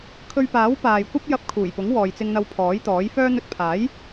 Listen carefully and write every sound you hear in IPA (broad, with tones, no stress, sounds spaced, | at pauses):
kʰ ɵ˧ ɥ p aː˨˥ w p aː˨ j kʷ ɐ˥ p̚ j ɐ˧ p̚ kʰ uː˨˩ j p ʊ˨˥ ŋ w ɔː˨ j t͡s ɪ˧ ŋ n̪ ɐ˧ w pʰ ɔː˨˥ j t̪ ɔː˨˥ j f œː˥ n̪ ɵ˧ t̚ pʰ aː˨˥ j